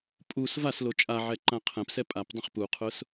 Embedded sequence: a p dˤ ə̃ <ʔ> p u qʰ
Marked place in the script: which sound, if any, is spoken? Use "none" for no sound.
χ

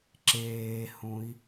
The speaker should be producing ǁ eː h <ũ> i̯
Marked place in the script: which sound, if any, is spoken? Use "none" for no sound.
ũ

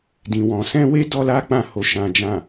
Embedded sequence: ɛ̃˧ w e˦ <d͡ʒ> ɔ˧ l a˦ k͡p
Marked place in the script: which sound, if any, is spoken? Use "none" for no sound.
d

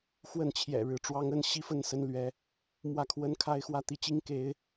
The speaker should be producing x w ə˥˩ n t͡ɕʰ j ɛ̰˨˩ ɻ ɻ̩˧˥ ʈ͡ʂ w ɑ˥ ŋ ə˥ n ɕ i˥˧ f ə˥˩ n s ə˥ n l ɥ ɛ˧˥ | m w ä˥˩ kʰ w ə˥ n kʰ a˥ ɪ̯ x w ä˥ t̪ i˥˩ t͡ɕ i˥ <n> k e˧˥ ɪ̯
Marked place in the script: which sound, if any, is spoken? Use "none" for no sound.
ŋ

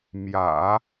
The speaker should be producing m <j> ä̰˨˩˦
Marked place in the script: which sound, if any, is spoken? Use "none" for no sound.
j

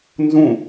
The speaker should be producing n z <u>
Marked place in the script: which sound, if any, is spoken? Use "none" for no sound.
ũ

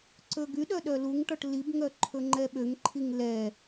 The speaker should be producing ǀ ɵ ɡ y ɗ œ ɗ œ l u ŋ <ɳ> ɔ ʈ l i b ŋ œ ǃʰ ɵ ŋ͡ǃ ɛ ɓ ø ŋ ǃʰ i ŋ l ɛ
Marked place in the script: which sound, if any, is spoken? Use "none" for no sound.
ʈ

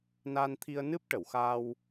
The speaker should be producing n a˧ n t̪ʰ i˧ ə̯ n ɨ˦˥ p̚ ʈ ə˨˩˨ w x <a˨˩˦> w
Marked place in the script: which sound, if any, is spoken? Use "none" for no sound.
a˧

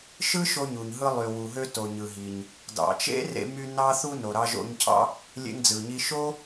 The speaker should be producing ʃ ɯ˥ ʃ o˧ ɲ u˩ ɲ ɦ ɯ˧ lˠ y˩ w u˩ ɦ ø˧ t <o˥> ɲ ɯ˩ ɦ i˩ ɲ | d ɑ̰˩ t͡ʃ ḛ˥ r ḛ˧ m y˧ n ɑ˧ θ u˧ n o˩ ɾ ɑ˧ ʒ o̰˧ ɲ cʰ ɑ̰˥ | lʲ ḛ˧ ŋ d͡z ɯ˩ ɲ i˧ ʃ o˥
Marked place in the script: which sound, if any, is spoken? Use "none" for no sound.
o˩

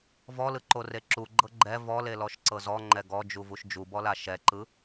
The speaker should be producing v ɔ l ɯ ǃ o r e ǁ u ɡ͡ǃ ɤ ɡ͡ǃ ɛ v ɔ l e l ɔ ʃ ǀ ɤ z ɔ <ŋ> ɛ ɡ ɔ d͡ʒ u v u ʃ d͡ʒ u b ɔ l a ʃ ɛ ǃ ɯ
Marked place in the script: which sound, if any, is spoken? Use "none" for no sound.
ŋ͡ǃ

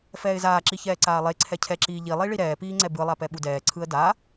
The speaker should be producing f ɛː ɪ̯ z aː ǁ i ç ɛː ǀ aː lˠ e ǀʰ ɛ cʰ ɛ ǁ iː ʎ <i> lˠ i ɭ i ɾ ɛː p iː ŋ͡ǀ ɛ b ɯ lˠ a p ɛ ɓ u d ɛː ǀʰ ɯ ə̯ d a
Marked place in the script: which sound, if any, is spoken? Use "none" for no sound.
i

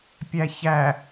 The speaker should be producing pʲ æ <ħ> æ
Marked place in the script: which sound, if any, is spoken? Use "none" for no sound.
ç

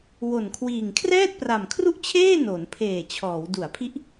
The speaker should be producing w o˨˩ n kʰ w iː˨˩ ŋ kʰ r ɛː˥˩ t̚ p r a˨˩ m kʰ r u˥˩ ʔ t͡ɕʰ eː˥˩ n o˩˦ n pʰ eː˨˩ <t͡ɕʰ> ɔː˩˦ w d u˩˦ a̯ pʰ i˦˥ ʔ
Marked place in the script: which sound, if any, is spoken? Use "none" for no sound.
t͡ɕʰ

